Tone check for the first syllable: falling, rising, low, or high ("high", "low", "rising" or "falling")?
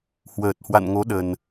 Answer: low